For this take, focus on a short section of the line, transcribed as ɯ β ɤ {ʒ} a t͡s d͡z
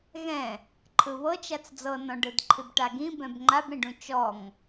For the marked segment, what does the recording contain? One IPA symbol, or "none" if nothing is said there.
t͡ʃ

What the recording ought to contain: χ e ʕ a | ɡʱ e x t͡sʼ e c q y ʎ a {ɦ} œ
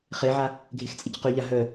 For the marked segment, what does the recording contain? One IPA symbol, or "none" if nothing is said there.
ɦ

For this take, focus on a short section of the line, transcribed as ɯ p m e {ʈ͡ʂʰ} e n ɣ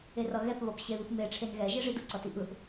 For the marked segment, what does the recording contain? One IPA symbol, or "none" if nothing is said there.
ʈ͡ʂʰ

